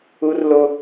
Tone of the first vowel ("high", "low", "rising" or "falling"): high